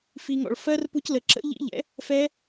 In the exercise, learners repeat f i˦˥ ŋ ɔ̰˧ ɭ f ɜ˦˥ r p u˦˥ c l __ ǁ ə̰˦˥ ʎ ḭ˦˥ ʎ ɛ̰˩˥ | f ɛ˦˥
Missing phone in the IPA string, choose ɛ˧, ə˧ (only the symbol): ə˧